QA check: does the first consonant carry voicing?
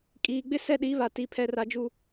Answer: no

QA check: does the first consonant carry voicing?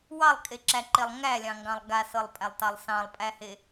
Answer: yes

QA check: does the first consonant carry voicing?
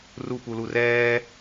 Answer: yes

